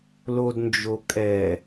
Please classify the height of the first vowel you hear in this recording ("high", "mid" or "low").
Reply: mid